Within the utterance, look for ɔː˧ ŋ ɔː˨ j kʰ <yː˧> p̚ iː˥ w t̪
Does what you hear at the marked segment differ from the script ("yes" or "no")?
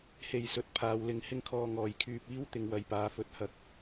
no